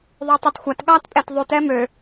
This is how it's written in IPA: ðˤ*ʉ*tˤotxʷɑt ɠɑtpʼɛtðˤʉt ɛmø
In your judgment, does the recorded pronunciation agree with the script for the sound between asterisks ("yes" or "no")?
no